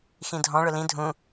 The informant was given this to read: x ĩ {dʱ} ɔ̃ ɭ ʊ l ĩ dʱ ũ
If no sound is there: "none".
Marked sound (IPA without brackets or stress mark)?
dʱ